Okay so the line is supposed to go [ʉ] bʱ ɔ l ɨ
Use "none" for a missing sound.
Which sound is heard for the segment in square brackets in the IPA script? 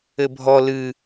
ɘ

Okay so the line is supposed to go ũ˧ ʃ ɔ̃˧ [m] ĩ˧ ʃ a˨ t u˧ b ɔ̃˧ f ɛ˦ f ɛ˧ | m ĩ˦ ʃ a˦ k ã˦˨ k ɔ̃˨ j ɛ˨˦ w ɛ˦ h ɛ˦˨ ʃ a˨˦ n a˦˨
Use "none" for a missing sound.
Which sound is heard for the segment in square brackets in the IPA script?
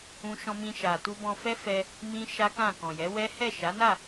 m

